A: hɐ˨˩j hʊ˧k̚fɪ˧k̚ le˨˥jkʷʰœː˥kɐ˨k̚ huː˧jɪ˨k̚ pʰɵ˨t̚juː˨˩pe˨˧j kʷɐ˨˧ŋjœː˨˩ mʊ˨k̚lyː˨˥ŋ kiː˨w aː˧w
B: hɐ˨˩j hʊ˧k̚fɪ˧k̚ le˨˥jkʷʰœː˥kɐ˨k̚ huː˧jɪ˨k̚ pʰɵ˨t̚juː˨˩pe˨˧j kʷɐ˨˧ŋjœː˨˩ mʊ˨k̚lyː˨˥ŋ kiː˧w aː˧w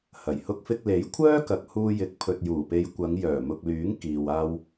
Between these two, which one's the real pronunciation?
A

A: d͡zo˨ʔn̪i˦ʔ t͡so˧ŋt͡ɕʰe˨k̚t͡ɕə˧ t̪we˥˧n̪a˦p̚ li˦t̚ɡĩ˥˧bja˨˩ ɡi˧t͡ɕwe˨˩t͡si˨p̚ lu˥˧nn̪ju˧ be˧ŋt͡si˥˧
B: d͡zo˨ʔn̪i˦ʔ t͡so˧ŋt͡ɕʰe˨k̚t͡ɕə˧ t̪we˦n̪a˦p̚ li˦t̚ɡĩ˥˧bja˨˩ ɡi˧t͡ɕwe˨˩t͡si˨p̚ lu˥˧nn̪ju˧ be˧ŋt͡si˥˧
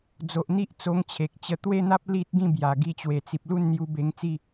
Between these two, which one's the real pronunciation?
A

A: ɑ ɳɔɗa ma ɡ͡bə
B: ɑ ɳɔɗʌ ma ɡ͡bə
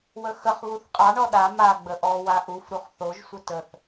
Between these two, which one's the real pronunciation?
A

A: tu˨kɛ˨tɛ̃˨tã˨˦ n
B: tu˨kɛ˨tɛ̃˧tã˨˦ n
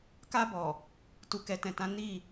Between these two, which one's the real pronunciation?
A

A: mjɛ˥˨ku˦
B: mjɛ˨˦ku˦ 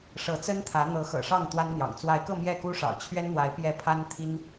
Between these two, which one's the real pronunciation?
A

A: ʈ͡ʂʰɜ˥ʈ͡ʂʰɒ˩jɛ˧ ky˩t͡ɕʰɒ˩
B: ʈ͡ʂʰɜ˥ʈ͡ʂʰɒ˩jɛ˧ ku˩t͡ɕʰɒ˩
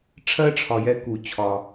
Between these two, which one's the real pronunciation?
B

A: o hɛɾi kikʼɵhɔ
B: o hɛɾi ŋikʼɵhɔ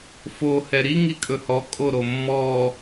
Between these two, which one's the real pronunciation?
B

